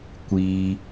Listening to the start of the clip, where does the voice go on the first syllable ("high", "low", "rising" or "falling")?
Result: low